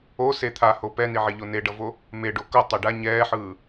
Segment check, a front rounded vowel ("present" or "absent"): absent